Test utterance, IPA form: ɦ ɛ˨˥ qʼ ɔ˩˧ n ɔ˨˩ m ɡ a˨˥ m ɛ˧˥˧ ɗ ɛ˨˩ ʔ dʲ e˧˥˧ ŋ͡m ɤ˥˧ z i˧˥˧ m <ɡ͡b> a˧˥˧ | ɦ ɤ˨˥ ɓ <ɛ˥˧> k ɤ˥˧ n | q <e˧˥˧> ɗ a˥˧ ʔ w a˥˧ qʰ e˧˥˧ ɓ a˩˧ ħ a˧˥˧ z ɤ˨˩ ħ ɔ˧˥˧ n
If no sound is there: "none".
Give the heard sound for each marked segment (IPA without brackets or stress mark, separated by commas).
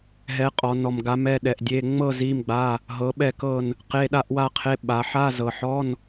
ɡ͡b, ɛ˥˧, e˧˥˧